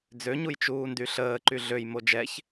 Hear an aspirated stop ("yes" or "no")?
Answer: no